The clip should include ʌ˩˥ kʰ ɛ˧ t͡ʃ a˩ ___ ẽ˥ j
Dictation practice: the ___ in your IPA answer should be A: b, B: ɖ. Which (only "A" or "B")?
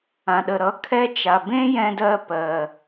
A